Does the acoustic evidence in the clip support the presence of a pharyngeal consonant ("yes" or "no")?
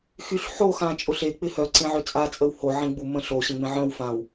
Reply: yes